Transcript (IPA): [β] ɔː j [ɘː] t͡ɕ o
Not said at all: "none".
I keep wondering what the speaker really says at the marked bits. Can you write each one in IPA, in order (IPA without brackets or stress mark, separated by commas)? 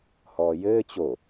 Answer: h, ɘː